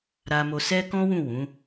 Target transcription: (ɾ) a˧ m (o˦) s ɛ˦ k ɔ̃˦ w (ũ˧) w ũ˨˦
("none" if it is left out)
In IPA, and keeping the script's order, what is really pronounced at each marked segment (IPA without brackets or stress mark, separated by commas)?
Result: ɾ, o˧, ũ˦˨